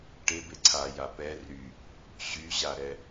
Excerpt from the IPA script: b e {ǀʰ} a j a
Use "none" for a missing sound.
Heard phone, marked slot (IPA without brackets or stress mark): ǀʰ